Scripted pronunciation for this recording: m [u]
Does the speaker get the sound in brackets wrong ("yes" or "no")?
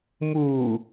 no